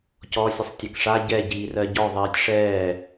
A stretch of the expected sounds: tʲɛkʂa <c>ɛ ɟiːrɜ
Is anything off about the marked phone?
yes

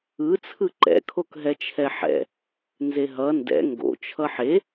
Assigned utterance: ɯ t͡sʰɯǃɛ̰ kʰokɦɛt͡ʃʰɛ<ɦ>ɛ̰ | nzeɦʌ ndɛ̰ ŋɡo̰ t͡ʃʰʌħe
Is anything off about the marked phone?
yes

